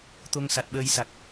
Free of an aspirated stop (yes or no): yes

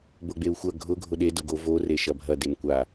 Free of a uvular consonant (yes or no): yes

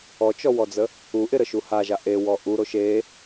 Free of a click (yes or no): yes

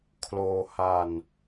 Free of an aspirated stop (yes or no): no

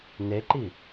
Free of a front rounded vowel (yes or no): yes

